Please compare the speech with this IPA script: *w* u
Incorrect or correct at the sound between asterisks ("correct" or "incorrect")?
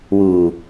correct